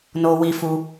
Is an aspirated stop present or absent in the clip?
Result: absent